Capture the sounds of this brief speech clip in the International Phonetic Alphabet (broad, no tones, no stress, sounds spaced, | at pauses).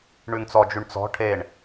ɳ ʉ ŋ t͡s ɔ d͡ʒ ʉ ɳ t͡s ɔ̤ ʈʰ e ɳ